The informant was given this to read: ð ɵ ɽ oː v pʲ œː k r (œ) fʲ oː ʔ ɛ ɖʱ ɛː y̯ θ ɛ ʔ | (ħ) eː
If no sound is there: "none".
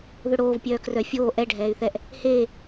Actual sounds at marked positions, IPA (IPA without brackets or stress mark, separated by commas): œ, h